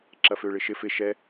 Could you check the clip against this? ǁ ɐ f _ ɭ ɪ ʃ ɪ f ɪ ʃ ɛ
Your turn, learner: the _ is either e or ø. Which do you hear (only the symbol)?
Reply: ø